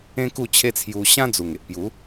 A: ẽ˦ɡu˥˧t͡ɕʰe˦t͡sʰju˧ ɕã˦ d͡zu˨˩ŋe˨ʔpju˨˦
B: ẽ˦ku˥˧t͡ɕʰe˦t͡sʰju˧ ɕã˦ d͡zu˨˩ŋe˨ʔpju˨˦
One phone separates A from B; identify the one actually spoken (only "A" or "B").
B